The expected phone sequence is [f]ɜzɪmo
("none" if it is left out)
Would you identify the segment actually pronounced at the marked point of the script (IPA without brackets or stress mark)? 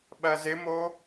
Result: ɓ